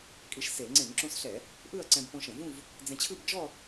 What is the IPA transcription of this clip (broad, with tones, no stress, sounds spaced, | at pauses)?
kʼ i˧ ʃ s e˧˩˧ ŋ͡ǀ ẽ˧˩˧ ŋ ǁ ũ˧ s ɬ ɛ˧˩˧ | ʔ ɯ˥˧ ɐ̯ ǀ ɛ̃˧ b p õ˧ ʃ ɛ̃˧˩˧ v ũ˥˧ v | d͡z ɛ̃˧ t͡ɕʰ ɯ˥˧ b d͡ʒ ɔ˥˧